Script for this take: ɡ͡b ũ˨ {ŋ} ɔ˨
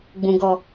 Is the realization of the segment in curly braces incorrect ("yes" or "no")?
yes